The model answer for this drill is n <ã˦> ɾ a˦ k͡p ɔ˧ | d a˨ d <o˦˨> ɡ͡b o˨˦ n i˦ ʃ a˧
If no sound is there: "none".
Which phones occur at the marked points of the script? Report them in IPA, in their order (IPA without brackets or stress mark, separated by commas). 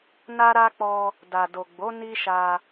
a˦, o˨